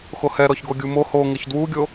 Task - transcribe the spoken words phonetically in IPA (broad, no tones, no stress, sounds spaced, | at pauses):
x o h ɛ ɾ ɔ ç ɡ o ɡʲ u m o h o ŋ ɪ ç d w u ɡʲ o